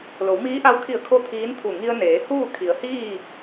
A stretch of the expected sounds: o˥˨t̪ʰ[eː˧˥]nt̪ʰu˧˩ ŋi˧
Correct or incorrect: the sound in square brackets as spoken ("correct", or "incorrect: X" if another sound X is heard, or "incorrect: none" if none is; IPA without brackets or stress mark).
incorrect: iː˧˥